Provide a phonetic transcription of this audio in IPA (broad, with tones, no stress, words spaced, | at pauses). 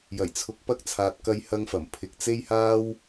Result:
jɐ˨˩jt͡sʰʊ˨˥k̚pɐ˧k̚ t͡sʰaː˨t̚kɐ˧jhɐ˧ŋfɐ˨˩m pʰɪ˨k̚t͡se˥jhaː˥w